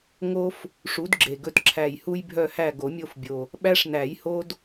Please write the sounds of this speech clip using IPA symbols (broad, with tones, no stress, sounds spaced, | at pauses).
ŋ o˦ f | ʂ u˨˥ d ɡ͡ǁ e˨˩ ɡ ɵ˦˨ t ǁʰ æ˨˩ j h u˦ j bʱ œ˦˨ h æ˦˨ ɡ o˨˩˦ mʲ o˦˨ f bʲ o˨˩ | ɓ æ˦ ʂ n æ˨˩˦ j h o˦ d